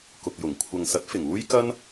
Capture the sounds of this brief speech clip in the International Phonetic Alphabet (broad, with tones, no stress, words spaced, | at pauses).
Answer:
kʊ˨k̚jʊ˨˩ŋ kʷʰɐ˨ŋsɐ˨˥t̚ fɪ˨˩ŋuː˥j kɐ˥n